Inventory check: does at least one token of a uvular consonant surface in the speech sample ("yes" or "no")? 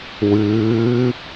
no